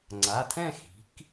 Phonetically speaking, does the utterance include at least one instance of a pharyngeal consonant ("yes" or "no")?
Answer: no